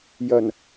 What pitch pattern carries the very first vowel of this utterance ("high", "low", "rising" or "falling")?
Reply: low